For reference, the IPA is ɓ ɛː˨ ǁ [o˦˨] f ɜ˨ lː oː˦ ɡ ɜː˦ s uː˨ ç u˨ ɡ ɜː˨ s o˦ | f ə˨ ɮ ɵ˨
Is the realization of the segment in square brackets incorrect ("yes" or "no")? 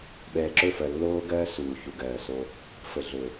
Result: yes